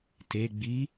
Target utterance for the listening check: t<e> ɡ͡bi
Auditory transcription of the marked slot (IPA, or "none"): e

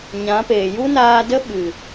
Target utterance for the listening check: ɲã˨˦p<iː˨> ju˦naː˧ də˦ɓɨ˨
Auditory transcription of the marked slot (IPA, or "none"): eː˨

